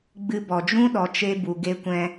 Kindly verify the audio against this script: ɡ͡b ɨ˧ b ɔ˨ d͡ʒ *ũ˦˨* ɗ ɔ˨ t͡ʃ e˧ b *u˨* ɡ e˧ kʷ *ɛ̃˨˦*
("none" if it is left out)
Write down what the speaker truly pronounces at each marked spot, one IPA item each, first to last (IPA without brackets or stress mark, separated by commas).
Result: ũ˦, u˨, ɛ̃˧